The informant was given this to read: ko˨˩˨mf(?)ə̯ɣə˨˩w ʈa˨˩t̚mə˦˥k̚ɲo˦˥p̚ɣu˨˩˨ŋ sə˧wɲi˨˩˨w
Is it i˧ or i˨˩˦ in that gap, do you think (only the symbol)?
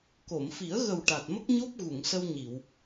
i˨˩˦